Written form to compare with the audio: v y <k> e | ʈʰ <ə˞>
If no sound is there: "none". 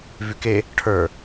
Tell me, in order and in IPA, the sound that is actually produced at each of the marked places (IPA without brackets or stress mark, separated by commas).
k, ə˞